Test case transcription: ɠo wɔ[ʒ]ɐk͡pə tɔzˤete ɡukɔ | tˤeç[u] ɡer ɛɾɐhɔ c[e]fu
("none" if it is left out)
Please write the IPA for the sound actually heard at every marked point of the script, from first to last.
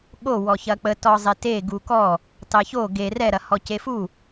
ç, o, e

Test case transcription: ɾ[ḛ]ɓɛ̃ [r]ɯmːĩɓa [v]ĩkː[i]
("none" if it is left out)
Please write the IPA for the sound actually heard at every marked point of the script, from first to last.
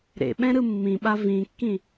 ḛ, ɾ, v, ĩ

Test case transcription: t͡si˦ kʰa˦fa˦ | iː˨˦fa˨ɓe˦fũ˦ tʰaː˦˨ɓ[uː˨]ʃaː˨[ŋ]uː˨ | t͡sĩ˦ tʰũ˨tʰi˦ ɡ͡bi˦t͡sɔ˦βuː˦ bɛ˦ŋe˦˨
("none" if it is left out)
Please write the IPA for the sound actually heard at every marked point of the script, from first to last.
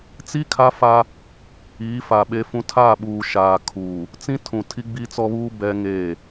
uː˨, kʰ

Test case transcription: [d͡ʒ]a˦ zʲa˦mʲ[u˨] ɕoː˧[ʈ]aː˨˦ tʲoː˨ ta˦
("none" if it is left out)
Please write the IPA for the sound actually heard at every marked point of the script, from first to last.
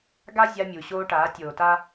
ɡ, u˨, ʈ

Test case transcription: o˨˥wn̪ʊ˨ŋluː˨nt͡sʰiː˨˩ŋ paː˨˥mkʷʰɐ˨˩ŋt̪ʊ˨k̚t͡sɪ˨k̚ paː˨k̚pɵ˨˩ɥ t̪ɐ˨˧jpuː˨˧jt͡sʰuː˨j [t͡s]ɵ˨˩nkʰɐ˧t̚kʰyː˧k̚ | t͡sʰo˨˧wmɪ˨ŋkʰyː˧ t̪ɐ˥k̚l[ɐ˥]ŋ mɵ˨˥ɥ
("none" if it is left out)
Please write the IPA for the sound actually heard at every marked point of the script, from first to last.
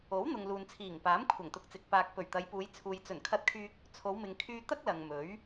t͡s, ɐ˨

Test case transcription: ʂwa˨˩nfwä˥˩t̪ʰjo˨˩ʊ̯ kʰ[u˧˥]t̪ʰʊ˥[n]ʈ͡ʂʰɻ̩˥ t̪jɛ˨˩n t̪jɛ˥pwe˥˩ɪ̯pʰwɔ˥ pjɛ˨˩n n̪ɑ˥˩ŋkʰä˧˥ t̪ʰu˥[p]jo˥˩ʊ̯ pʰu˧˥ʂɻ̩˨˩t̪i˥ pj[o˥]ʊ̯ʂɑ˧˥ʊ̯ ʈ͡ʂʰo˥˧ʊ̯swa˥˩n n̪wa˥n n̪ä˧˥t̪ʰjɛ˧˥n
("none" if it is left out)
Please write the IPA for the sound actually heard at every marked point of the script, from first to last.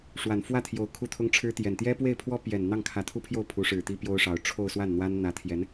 u˥˩, ŋ, pʰ, o˥

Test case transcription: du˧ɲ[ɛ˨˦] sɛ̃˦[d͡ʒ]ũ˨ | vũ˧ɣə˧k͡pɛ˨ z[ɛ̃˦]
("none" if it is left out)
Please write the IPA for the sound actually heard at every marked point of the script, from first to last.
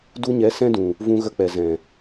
ɛ˨˦, d, ɛ̃˨

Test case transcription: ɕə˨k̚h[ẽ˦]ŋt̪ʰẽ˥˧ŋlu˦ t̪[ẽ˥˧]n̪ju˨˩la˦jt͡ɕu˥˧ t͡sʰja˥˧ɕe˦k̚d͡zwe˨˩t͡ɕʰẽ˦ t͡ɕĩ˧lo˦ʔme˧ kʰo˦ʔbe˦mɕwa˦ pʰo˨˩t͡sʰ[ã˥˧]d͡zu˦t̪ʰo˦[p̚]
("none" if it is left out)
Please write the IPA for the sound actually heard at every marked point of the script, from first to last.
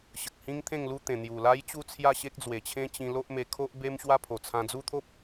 ĩ˦, ẽ˨˩, ã˧, p̚

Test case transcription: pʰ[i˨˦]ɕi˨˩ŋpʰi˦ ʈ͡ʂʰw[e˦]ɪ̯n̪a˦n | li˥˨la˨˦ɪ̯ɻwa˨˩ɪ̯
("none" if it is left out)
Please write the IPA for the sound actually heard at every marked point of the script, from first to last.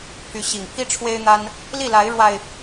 y˨˦, e˦

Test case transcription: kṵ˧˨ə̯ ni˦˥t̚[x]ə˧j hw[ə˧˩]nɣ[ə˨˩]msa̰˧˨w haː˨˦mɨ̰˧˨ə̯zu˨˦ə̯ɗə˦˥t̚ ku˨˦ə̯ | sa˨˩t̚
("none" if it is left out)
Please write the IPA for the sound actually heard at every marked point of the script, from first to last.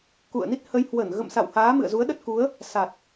h, ə˧˩, ə̰˧˨

